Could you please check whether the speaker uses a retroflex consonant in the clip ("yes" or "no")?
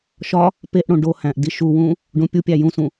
yes